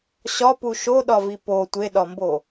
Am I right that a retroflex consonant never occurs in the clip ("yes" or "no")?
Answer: yes